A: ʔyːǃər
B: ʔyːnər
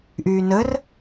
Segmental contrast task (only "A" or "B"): B